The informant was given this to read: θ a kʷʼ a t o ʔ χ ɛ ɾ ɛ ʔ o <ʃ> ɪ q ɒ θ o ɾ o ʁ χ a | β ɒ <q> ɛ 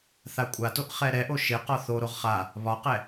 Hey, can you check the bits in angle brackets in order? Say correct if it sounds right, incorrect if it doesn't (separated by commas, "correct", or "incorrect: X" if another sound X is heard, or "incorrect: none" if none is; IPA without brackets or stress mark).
correct, correct